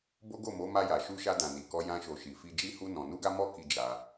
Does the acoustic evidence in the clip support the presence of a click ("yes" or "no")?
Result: no